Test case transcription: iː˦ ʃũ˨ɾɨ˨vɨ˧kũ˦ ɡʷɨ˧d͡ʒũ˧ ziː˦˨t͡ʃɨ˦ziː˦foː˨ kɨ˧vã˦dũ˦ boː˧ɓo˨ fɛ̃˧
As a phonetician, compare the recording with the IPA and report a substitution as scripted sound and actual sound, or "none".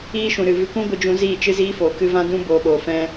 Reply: none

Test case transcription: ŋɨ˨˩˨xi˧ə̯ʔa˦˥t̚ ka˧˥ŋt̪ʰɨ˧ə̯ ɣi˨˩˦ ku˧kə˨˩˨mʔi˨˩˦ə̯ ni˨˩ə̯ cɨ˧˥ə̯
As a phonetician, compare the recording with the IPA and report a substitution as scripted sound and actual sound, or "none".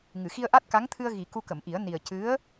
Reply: none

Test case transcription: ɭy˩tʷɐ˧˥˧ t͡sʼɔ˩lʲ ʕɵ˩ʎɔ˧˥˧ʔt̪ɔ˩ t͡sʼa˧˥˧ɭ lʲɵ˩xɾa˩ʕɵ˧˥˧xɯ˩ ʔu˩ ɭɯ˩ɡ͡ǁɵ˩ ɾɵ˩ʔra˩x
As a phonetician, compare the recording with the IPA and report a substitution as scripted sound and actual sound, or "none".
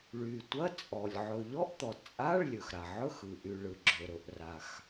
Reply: u˩ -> y˩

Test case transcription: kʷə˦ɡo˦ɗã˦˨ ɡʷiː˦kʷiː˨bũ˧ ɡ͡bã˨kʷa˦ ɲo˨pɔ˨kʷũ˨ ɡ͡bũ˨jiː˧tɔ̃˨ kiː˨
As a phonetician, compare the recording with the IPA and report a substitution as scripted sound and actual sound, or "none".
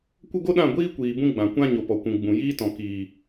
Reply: a˦ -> ã˦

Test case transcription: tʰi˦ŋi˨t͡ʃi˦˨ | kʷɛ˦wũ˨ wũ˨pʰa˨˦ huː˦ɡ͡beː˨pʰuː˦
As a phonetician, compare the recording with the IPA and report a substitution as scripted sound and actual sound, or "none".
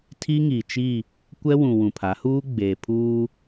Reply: none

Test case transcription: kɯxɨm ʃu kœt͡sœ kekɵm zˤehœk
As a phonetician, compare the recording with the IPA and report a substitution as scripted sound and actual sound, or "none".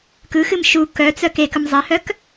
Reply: none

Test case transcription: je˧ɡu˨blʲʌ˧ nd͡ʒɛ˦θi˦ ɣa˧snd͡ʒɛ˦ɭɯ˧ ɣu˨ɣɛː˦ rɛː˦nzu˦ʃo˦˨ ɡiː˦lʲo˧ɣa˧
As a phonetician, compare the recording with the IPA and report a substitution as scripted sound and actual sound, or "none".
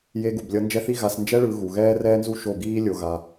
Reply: none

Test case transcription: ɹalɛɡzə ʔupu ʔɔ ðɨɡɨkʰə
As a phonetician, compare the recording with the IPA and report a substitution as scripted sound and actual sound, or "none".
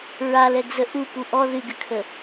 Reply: none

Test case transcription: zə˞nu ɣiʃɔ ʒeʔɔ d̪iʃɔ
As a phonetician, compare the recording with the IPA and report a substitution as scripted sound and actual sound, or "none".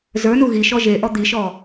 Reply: none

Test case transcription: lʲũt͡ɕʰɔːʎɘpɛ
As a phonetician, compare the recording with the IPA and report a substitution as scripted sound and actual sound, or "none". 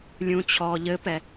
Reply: none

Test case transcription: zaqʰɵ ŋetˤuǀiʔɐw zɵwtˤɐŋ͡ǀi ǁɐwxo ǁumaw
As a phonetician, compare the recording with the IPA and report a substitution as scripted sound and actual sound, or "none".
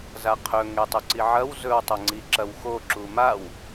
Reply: ʔ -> ʕ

